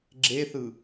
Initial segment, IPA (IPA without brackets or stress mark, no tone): ɡ͡ǁ